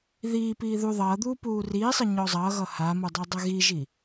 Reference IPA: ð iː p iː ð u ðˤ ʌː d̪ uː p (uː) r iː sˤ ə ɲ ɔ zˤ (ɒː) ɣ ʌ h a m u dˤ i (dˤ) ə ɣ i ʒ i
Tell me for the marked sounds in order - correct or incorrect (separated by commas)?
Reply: correct, incorrect, correct